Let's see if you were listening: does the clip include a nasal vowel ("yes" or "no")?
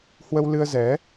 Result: no